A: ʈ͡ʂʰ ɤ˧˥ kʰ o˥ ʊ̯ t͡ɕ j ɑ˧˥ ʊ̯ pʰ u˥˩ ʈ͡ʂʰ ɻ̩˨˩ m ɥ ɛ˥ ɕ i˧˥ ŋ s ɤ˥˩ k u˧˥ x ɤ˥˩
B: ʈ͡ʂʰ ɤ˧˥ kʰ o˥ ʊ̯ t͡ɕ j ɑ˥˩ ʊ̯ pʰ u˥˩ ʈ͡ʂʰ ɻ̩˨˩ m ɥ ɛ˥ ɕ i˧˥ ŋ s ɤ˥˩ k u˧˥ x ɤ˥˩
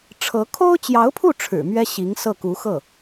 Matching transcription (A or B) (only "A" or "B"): A